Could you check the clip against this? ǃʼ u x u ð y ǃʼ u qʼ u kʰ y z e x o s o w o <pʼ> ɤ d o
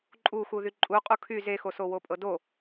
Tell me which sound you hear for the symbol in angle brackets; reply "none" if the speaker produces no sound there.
pʼ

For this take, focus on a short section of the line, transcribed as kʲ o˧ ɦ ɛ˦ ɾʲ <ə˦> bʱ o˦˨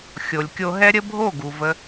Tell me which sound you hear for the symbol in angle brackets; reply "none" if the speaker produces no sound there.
ə˦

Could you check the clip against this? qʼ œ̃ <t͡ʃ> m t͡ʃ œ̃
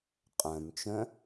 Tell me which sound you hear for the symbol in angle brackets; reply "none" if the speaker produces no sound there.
none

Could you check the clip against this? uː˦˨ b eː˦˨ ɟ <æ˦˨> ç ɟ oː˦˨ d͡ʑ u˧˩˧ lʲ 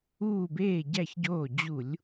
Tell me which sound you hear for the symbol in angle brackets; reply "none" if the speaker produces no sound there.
æ˦˨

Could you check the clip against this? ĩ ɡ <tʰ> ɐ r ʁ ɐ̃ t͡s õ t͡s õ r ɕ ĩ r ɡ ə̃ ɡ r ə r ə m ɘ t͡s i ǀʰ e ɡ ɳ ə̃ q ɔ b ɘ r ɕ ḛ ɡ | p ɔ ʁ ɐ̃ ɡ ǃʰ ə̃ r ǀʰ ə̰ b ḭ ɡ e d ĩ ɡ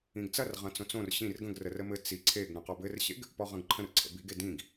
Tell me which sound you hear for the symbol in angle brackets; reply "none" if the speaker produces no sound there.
t͡s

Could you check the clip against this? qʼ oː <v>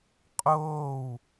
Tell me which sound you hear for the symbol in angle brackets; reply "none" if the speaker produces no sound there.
w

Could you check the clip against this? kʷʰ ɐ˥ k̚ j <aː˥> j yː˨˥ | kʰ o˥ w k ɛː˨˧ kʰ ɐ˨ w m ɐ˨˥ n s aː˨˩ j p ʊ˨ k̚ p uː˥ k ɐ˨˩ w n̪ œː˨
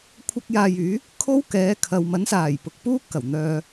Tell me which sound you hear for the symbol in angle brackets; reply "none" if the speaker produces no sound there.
aː˧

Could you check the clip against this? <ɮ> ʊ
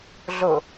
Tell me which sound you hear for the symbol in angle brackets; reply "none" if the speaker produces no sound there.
ɮ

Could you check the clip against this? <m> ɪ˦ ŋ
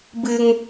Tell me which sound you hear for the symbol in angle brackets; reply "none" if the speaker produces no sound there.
b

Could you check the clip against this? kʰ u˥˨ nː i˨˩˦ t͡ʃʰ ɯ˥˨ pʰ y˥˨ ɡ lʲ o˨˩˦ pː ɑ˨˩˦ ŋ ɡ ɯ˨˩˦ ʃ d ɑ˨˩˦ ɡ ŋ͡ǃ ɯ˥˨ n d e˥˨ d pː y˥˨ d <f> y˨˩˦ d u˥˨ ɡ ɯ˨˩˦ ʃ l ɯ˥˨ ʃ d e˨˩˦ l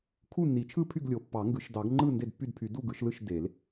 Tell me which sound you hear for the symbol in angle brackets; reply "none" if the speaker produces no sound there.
pʰ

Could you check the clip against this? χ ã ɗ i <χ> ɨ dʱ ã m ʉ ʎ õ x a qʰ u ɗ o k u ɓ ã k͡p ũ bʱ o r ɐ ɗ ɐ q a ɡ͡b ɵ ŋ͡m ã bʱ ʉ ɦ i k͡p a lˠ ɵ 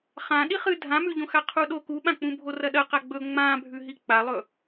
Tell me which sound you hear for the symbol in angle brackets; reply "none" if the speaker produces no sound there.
χ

